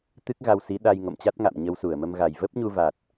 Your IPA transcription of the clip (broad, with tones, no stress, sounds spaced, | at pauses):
t̪ ɨ˦˥ k̚ ɣ a˧ w s i˨˦ ɗ a˧ j ŋ o̰˧˨ m t͡ɕ a˦˥ t̚ ŋ a̰˧˨ m ɲ ə˧ w s u˧˩ ə̯ m ə˧ m ɣ a˨˩ j v ə˦˥ p̚ ɲ u˧ v a˨˩ t̚